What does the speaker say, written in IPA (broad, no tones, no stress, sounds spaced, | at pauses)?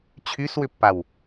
t͡ɕʰ y s w ʏ pː a w